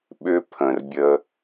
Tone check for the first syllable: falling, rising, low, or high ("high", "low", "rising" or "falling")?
high